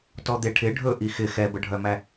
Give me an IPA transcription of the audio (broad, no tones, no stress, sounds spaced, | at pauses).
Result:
t ɔ d̪ e ʈʰ ɪ ɖʱ ɵ ʔ i x ɪ x ɛ b ə ɖʱ œ m æ